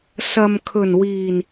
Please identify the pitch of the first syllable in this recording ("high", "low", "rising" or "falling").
low